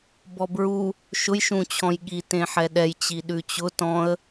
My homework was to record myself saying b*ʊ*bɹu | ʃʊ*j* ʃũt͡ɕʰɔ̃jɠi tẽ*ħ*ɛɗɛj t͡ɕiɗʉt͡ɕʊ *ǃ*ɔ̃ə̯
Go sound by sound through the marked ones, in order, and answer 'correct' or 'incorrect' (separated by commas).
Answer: incorrect, correct, correct, incorrect